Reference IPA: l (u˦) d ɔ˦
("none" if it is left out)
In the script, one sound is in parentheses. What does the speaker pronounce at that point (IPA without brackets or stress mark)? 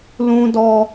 ũ˦